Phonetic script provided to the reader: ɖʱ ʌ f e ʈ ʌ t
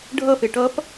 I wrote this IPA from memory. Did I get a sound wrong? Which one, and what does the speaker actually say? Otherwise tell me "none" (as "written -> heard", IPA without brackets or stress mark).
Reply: t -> p